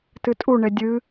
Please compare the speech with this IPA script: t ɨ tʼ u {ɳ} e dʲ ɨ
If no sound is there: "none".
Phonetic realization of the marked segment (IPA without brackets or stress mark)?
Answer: ɳ